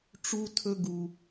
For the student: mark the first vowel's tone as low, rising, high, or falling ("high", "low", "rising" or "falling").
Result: high